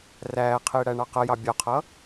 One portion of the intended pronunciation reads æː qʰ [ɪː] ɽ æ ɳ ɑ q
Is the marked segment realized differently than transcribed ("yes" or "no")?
no